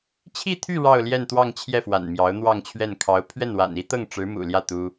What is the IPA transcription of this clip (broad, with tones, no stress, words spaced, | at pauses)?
t͡ɕʰi˥˧t̪ʰy˥˧ ɻɑ˥˧ʊ̯ljɛ˥˧nt̪wɑ˥˧ŋ t͡ɕʰjɛ˥˩fwa̰˨˩n mjɑ˧˥ʊ̯n̪wɑ˥˧ŋt͡ɕʰɥɛ˥˩n kʰɑ˧˥ʊ̯ pʰɥɛ˥˩nwa̰˨˩ni˥t̪ɤ˥˩ŋ ʈ͡ʂɻ̩˧˥mṵ˨˩ljä˥˩ t̪u˥